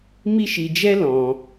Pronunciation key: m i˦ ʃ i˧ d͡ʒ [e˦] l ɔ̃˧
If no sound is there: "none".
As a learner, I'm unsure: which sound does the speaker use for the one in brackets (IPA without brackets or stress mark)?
ɛ˦